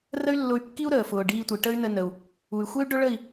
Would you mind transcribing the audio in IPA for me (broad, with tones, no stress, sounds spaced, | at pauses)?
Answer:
r ə˦ y̯ lː ʊ˧ y̯ kː i˦ u̯ ɾ əː˨ f ʊː˨ ɖ iː˧ tʷ i˨ ʈ ə˦ y̯ n ə˧ n ə˨ u̯ | u˨ y̯ xʷ e˦ y̯ ɖ ʊ˦ ɭ ə˦˨ i̯